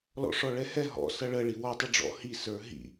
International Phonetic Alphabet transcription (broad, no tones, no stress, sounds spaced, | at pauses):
l ɔ̰ ʂ ɔ ɭ ɛ h ɛ ɦ ɔ̰ s ʌ ɭ ə ɭ i w ɔ tˤ ə ɖ͡ʐ ɔ̰ h i s ə˞ ɦ ḭ